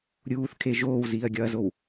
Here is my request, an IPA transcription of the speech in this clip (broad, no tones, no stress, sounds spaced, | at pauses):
ɾʲ uː θ kʰ e ʒ oː w z iː ɐ̯ ɡʲ ɒ ɐ̯ z o w